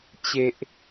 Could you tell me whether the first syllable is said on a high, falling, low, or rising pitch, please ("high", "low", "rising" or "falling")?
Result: low